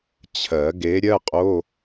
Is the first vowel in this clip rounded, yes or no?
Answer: no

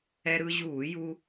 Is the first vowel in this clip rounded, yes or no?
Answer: no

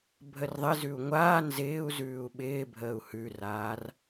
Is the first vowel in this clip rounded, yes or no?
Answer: no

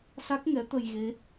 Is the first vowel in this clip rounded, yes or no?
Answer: no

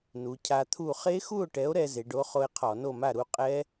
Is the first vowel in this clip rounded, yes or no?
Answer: yes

